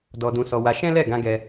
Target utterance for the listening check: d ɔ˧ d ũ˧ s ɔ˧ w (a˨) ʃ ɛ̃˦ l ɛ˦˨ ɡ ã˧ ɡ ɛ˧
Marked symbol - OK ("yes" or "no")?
no